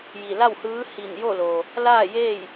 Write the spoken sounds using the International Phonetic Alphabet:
j i˧˩ l a˥˨ w h ɯː˧˥ h i˧˩ n j o˥˨ l oː˩ | l aː˥˨ j eː˥˨ j

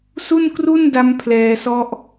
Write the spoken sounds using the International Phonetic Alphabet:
s u˥˩ n k r u˥˩ n d a˦˥ m pʰ l ɛː˧ s ɔ˦˥ ʔ

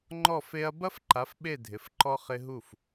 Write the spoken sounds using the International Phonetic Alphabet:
ŋ͡ǃ ɔ˥˨ f e˦˥ ɐ̯ b ɐ˦˥ f ǃ a˨˥ f ɓ e˥˨ dʱ ɪ˨˥ f ǃ ɔ˦˥ χ ɪ˦˥ ɦ u˥˨ f

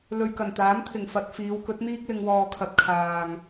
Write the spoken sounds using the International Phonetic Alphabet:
l ɵ˨ ɥ k ɐ˨˩ n t̪ aː˨˥ m t̪ʰ ɪ˨˩ ŋ f ɐ˧ t̚ f iː˨˧ w k ɵ˨˥ t̚ n̪ iː˥ k̚ l ɪ˧ ŋ w ɔː˨ kʰ ɐ˨ t̚ kʰ aː˨ ŋ

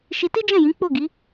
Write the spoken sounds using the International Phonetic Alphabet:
ʃ i˧ t i˦ d͡ʒ ɛ̃˦˨ j ĩ˨˦ k͡p o˦˨ ɡ i˨˦

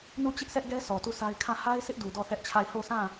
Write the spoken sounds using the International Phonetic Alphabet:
n u˦˨ t͡ɕ ɪ˦ ʔ s ɛ˦ ʔ ɡ ɛ˦ sʰ ɔ˨ t u˦˨ sʰ a˦ ɪ̯ kʰ ã˦˨ h a˦ ɪ̯ s ɪ˦ ʔ d u˨ d ɔ˦˨ θ ɛ˦ ʔ t͡ɕʰ a˦˨ ɪ̯ h o˦˨ s ã˦˨

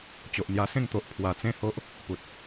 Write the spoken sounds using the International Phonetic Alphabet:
t͡ɕ o˨ ʔ n̪ j a˧ s ẽ˥˧ ŋ t̪ o˨ ʔ pʰ w a˨˩ t͡s ẽ˥˧ h o˦ ʔ | p u˨ t̚

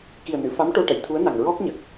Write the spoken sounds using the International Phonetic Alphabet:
k i˨˩ ə̯ n ɨ˨˩˨ f a˧˥ m ʈ o˧ ʈ ə˨˩˨ j t̪ʰ u˧˥ ə̯ n a˨˩ ŋ ɹ ɔ˦˥ k̚ ɲ ə˨˩ k̚

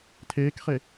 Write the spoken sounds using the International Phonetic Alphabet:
tʰ eː k χ e

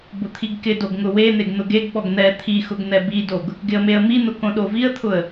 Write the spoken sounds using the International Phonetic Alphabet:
b ʊ t̪ʰ i ɡ k ɪ d o ɡ ŋ ʊ w e n̪ e ɡ n̪ ʊ ɡ e ɡ ɓ ɔ ɡ n̪ ɛ t̪ʰ i x ʊ ɡ n̪ ɛ b i d o ɡ | ɡ ɪ ə̯ m e ə̯ m i n̪ ʊ k õ ɗ o v i ə̯ t̪ʰ ʊ ə̯

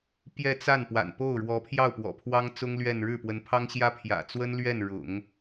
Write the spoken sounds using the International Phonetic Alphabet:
p j ɛ˥˧ t͡s a˥˩ n p w a̰˨˩ n p o˥˩ ʊ̯ ɻ w ɔ˧˥ pʰ j ɑ˥˩ ʊ̯ p w ɔ̰˨˩ pʰ w ɑ˥ ŋ t͡s ʊ˥ ŋ l ɥ ɛ˥˧ n ɻ ɻ̩˥˩ p w ə˧˥ n pʰ ɑ˥ ŋ ɕ j ä˥ pʰ j ä̰˨˩ t͡s w ə˥ n l ɥ ɛ˥˩ n ɻ ʊ̰˨˩˦ ŋ

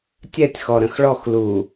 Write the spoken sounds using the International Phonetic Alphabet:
tʲ ɛ tʲ x ɔ ɾ ə̃ x ɭ ɔ x l uː

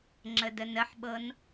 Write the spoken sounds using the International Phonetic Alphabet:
ŋ͡ǁ ə d ə n ə ħ ɓ ɤ n

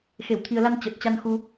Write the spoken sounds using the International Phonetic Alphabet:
x e˧˩ w t̪ʰ i˨˩ ə̯ l a˧ n t͡ɕ ə˨˩ t̚ t͡ɕ a˧ n x u˧

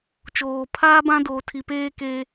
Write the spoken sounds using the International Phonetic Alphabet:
t͡ʃ oː˨ pʰ aː˦ b ã˦ d oː˨ tʰ i˨ p eː˦ k e˦

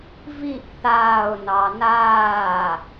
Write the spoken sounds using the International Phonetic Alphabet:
v i ʔ θ aː ʊ̯ n ɑ n aː

